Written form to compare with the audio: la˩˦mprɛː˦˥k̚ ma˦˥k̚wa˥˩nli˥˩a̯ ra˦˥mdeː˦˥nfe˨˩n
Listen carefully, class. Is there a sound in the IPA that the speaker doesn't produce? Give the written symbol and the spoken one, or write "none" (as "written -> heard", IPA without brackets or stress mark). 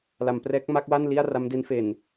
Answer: eː˦˥ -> e˦˥